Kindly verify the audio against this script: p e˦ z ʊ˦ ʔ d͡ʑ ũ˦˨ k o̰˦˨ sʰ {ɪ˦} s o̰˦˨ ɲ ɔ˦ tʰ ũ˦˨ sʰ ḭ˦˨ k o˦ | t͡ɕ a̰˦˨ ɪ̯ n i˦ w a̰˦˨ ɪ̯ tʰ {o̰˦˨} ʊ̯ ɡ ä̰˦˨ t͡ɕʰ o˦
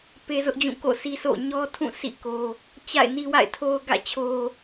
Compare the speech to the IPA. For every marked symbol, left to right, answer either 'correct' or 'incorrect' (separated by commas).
incorrect, incorrect